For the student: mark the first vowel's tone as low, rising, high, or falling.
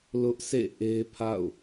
high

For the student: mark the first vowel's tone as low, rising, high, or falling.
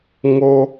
high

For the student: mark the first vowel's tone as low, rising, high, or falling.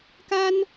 high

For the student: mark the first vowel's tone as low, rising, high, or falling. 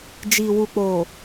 low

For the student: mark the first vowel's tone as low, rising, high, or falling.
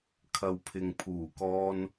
low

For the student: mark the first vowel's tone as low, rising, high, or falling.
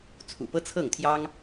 low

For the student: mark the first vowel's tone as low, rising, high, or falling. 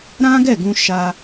high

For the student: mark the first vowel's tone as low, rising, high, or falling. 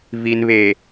low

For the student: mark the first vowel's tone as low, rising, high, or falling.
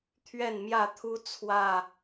falling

